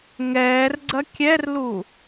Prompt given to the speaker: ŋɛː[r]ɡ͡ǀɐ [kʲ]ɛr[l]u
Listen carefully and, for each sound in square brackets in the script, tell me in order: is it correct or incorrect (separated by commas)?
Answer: correct, correct, correct